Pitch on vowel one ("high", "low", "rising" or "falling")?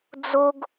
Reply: high